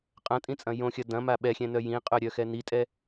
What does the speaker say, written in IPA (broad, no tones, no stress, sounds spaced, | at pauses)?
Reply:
qʼ ɐ̃ tʼ ĩ t͡sʼ ɐ̃ j õ xʲ ɐ d ɐ̃ m a ɓ ɛ xʲ ɛ̃ n œ j ĩ qʼ œ ɾʲ œ x ɛ n i tʼ ɛ